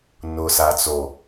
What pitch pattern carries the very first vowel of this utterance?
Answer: low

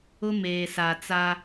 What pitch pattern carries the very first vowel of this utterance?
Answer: high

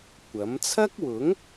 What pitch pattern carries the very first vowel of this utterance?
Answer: rising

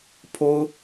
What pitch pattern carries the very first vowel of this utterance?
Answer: high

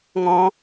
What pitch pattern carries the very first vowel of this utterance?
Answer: high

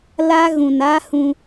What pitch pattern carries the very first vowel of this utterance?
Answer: high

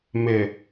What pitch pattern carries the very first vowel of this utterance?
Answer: low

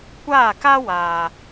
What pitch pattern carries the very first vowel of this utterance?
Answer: falling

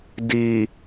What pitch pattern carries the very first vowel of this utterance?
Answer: low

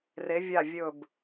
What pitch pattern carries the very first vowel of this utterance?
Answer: rising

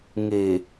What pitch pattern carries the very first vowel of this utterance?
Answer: low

